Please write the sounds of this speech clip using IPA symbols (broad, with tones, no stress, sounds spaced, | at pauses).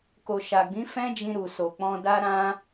k o˨ ʃ a˨ ɡ͡b ĩ˨˦ f ɛ̃˦ d͡ʒ ĩ˧ ɾ u˨ s o˨ k͡p ɔ̃˧ d a˦ ɾ ã˦